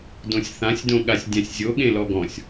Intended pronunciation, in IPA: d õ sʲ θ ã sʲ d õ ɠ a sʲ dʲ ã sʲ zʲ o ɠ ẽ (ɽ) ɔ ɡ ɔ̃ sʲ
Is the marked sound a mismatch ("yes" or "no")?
yes